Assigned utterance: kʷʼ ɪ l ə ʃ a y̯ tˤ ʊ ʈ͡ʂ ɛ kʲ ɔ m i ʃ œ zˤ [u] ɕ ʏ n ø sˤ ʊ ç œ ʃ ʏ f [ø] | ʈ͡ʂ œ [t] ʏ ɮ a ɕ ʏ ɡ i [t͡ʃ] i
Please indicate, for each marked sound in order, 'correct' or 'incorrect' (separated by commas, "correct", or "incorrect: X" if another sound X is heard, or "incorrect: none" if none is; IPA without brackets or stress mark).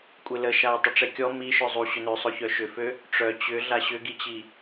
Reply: correct, correct, incorrect: t͡ɕ, incorrect: t͡ɕ